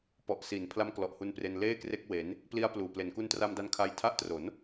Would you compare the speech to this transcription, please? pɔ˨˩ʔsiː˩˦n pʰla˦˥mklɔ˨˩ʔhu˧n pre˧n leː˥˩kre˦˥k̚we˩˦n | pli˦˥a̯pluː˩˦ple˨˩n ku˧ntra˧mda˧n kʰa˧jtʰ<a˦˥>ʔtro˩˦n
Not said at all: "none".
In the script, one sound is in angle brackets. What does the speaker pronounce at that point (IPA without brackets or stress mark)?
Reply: a˦˥